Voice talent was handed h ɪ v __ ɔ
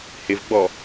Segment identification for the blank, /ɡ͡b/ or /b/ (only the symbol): ɡ͡b